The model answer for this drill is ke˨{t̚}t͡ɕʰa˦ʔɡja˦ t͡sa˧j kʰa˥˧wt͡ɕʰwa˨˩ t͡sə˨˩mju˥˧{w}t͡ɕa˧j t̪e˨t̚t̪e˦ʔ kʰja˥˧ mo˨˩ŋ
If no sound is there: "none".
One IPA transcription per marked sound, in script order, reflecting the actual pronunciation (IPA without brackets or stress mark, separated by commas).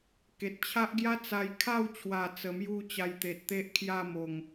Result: t̚, none